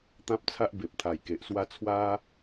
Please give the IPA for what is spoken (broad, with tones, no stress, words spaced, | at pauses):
t̪ã˦p̚t͡sʰa˦ʔ be˨p̚t̪ʰa˨˩jke˨ʔswa˦ t͡sʰwa˦